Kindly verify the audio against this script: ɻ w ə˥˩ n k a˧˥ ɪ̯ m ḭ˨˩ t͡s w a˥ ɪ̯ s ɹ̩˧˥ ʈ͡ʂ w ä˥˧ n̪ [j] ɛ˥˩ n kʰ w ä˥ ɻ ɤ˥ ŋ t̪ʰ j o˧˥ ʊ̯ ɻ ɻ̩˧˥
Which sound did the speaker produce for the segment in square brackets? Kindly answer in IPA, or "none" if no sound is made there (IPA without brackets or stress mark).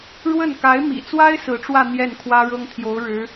j